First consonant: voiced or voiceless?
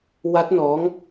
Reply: voiced